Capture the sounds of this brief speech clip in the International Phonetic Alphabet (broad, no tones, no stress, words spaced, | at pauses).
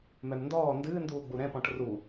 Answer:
mɛmndɔː ndɨːnduːɡ͡bu ɾɛ̃pɔ̃ʈ ru